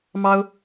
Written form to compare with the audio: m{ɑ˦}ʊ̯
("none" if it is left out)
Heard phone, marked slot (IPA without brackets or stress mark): ɑ˦